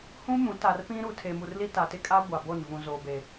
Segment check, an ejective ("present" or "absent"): present